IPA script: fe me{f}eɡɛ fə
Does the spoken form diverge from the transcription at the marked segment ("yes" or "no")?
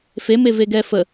yes